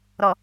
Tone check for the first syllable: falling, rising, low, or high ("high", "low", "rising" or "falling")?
low